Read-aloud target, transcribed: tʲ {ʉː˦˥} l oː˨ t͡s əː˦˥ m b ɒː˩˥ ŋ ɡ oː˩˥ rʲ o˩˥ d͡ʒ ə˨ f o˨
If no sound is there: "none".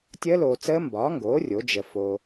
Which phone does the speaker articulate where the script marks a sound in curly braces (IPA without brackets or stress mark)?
əː˦˥